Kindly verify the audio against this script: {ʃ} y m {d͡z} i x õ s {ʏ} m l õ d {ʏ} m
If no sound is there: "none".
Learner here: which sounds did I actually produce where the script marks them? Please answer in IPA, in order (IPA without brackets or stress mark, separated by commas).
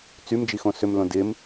t͡s, d͡ʒ, ʏ, ɪ